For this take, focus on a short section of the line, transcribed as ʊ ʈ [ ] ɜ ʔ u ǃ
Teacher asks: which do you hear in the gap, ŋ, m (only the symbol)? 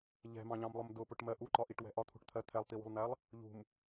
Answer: m